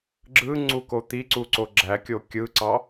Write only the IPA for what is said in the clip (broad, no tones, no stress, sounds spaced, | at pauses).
ɡ͡ǁ ɯ ŋ͡ǀ u k o t̪ i ǀ u ǀ o ɡ͡ǁ æ kʲ o kʲ ɯ ǀ ɑ